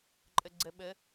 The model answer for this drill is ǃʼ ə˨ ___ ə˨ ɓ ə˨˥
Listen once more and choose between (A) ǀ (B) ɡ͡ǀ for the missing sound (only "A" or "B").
B